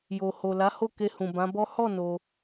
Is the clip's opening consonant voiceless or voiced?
voiced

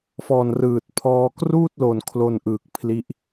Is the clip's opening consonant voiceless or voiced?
voiceless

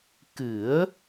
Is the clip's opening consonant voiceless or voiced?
voiceless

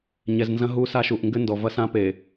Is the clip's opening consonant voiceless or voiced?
voiced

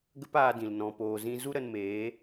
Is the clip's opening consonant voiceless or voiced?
voiced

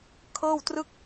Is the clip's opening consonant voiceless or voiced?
voiceless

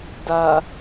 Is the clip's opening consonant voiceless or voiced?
voiced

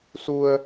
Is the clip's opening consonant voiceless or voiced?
voiceless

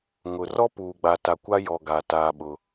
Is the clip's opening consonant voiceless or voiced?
voiced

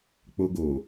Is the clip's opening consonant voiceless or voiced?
voiceless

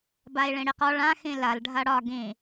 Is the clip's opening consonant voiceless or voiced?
voiced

